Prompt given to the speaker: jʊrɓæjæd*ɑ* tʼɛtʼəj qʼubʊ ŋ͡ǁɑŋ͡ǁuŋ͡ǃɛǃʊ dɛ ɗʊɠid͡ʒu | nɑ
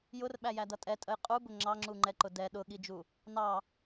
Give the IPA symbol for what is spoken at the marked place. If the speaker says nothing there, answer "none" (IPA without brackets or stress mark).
ʌ